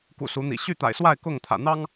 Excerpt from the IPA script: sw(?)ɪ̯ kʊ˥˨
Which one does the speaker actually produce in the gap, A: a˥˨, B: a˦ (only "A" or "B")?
A